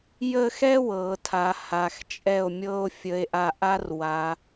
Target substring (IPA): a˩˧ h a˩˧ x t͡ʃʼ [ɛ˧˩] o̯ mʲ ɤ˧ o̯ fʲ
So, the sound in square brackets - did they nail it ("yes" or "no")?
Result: yes